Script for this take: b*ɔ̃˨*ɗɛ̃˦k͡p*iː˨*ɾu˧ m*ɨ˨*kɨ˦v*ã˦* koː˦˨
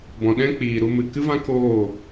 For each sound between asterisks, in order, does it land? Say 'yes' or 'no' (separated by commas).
yes, yes, yes, yes